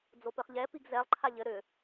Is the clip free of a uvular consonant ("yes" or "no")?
no